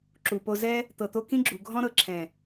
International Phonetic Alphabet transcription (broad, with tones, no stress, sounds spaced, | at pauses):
ǁ u˨ p o˧ z ɛ˦ | t̪ ɤ˨ t̪ o˧ k ĩ˦ ɡ͡ǁ u˨ ɡʱ ɔ̃˦ ɾ ɤ˧ ǁʰ ɛ̃˨